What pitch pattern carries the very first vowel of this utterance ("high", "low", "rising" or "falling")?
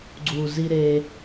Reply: low